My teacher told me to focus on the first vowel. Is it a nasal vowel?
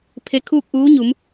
no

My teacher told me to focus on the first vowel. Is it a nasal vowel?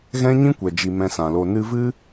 yes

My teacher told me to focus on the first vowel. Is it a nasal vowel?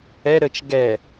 no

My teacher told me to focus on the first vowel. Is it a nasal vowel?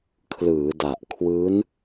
no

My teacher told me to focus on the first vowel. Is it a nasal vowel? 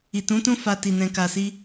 no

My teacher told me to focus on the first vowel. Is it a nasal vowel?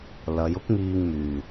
no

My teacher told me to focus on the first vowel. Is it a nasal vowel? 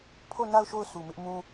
no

